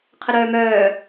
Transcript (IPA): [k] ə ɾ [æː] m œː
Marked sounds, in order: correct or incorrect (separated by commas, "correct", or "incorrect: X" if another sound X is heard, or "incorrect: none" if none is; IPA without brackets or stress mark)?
incorrect: qʰ, incorrect: œː